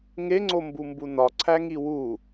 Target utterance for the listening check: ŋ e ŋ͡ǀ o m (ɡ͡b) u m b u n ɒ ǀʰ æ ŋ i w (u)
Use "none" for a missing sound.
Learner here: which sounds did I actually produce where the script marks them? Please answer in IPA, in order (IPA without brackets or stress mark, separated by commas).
b, u